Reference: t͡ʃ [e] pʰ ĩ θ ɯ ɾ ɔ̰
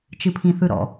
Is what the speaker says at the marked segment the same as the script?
no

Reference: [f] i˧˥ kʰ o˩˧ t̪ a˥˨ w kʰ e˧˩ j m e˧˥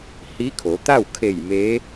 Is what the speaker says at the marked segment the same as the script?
no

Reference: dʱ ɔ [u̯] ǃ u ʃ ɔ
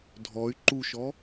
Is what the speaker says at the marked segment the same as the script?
no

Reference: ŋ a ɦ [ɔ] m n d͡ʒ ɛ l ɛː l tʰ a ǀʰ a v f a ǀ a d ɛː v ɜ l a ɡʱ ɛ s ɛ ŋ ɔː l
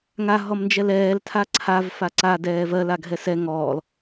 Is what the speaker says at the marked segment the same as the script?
yes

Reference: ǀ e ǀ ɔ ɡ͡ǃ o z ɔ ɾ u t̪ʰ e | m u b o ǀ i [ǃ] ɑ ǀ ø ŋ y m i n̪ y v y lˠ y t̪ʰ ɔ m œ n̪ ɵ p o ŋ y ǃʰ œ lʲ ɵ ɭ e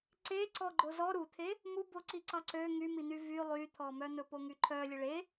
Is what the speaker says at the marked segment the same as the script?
no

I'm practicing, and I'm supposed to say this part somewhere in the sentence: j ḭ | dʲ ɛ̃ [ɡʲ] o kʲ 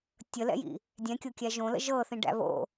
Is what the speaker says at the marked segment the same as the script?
no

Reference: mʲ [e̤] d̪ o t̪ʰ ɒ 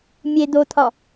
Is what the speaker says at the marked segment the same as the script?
no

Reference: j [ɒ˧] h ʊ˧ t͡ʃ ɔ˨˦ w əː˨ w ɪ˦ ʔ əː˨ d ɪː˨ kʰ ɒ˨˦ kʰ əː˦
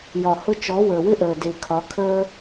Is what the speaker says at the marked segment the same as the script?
no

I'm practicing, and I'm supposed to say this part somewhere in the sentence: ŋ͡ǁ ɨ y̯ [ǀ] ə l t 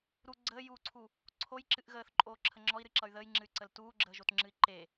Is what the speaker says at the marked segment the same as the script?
yes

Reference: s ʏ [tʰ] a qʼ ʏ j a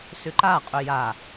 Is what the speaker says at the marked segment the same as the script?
no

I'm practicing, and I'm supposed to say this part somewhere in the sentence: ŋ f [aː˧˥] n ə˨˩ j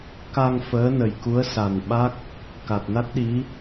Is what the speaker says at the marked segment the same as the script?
no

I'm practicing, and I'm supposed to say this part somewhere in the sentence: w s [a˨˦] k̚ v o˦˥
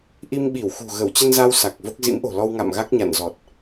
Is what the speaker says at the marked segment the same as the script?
no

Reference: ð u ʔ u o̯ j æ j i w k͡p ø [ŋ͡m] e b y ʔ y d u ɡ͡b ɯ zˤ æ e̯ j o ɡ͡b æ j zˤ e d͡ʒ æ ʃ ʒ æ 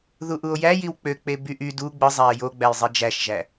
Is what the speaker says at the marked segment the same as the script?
no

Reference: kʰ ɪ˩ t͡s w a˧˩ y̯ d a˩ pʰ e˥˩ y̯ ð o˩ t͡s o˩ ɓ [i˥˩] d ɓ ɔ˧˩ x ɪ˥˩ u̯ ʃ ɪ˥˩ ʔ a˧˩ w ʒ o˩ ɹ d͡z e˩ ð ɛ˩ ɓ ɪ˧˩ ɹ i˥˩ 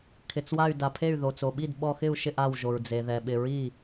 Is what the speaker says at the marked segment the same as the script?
yes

